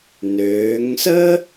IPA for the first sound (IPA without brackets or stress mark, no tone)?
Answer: n